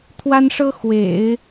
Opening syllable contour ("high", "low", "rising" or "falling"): high